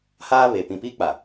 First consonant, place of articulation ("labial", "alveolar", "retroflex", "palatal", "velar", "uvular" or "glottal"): glottal